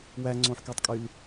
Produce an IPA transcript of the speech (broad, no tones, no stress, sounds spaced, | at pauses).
w æ ŋ͡ǀ õ ħ k ø tˤ kʼ y l